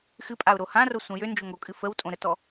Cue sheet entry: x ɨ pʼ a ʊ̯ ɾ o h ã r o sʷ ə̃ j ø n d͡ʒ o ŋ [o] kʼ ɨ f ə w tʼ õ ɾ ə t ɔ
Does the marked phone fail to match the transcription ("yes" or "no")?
no